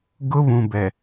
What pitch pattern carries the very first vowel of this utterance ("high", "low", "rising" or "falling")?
high